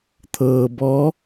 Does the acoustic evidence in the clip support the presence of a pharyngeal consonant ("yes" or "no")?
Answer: no